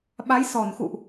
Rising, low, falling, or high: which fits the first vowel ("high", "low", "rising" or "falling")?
rising